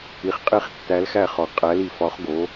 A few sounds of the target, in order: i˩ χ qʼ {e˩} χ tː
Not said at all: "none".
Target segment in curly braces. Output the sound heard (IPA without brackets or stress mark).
e˧˩